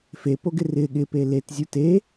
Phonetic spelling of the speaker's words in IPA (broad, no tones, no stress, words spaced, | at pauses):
fepoɡɪ rɪ ɠɪpe letzʲu te